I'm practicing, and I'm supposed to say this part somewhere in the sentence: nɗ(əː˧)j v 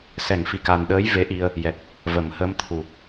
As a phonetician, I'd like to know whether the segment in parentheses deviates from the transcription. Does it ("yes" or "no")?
yes